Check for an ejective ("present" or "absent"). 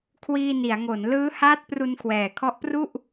absent